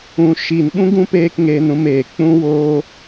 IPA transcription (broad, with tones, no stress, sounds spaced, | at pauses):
ũ˨ ʃ iː˨ n ɓ ũ˦ ɡ ũ˦ p eː˦ k ŋ e˧ n ũ˧ m eː˨ k͡p ũ˦ w oː˦